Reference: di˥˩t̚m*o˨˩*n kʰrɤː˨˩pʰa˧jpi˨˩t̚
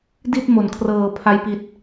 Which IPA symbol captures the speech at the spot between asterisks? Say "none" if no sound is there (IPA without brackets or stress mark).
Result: o˨˩